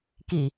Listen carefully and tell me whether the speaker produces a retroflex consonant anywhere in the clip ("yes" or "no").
no